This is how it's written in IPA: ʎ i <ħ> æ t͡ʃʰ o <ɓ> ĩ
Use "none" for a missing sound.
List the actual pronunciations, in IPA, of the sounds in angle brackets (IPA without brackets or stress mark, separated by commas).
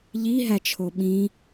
ɦ, ɓ